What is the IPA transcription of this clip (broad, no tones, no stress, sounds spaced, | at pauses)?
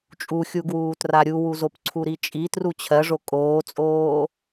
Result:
t͡ʃʼ u xʲ u ɡ w uː t r a ɾʲ u w u z o p ǀʰ u ɾ i t͡ʃʼ i t r u t͡ɕʰ ɜ ʐ o kʼ oː t͡sʼ oː